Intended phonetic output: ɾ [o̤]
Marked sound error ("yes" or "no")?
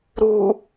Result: yes